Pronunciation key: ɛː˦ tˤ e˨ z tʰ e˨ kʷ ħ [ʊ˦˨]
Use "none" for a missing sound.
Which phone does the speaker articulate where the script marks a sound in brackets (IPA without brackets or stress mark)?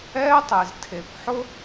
ʊ˦